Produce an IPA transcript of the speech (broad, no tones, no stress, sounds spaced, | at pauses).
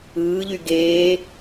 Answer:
ɯː ʎ y ɡ eː